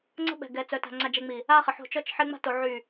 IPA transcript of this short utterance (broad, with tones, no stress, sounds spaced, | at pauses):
ŋ͡ǀ ə̤˦ ɓ ɛ̤˨ ɡ ɛ˨ t͡s œ˨ t a̤˨ ŋ͡ǀ a˨ d͡ʒ ɛ˨ ŋ͡m i˨ | a˦ χ ə˨ ħ o̤˦˨ t͡ʃ ɔ˦ t͡ʃ ħ e˦ ŋ͡m a̤˦ t o˨ ʕ y˦˨